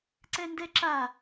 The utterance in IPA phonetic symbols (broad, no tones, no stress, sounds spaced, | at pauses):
ǀ ɛ n d ɛ ǁ a